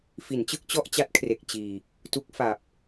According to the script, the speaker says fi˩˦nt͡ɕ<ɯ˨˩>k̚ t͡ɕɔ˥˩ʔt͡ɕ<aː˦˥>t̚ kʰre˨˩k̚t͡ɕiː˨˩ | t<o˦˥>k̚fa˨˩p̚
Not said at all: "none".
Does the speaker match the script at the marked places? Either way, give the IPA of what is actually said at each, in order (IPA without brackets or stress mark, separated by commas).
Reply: ɯ˥˩, a˦˥, u˦˥